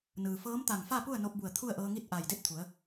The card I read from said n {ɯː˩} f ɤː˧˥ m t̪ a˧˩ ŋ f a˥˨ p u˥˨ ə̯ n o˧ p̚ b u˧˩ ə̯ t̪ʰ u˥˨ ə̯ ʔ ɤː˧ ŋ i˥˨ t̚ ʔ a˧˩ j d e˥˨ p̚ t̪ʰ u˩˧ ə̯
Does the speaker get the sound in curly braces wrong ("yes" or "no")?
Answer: no